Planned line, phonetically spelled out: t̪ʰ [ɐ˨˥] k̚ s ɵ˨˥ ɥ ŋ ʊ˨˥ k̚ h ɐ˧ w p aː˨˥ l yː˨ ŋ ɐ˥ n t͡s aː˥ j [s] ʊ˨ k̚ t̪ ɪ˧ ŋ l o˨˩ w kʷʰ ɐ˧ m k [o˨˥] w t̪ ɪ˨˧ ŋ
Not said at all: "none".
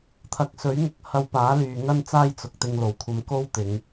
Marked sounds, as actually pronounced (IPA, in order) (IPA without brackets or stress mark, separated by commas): ɐ˨˥, t͡s, o˥